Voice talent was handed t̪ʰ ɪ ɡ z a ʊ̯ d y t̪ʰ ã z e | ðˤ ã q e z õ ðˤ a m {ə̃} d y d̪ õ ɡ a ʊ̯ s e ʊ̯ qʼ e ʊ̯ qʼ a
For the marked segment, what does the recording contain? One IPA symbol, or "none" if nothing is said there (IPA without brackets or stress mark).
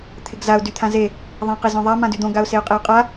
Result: ã